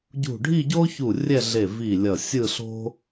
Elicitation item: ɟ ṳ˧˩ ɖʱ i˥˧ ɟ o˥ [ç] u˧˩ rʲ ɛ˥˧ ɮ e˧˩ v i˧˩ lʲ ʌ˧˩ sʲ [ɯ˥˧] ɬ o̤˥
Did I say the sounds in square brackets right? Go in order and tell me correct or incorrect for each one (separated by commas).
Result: correct, correct